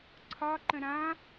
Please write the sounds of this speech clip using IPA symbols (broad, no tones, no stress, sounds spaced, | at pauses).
ǀʰ ɒ ǃ ə̃ ɾ ã